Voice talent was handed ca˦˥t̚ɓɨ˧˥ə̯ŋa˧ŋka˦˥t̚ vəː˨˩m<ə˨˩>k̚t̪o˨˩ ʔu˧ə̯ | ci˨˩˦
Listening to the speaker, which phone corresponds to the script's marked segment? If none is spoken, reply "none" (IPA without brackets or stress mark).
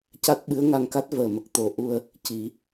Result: ə˨˩